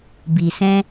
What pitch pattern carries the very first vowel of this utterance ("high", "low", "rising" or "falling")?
low